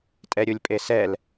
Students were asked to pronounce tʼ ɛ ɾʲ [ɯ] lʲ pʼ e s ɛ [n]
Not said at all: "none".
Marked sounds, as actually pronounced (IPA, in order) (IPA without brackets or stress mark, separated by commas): u, l